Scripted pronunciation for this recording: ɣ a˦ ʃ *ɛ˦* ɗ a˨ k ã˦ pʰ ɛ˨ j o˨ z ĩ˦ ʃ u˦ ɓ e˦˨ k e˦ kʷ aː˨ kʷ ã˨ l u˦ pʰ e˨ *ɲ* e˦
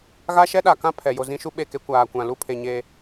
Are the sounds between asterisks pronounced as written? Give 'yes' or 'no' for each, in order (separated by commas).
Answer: yes, yes